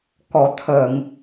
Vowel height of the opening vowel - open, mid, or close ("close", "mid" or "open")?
mid